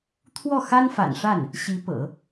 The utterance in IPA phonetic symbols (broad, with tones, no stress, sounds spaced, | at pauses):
t̪ʰ w ɔ˥˩ x a˥ n f a̰˨˩ n ʂ a˥˩ n | ɕ i˧˥ p ɤ̰˨˩˦